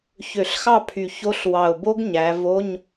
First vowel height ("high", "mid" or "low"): mid